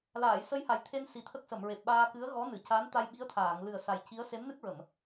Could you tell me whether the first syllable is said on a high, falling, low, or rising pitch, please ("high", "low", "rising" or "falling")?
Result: low